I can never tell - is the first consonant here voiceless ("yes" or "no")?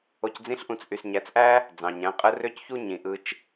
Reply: yes